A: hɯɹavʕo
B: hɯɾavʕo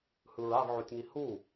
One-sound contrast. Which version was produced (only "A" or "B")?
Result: A